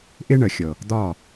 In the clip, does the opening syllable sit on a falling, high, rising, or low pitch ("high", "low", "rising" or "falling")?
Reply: high